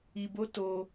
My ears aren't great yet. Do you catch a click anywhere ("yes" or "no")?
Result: no